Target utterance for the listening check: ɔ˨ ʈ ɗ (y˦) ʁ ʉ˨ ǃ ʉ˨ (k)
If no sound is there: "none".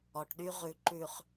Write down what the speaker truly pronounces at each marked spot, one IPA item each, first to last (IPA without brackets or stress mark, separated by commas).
y˦, χ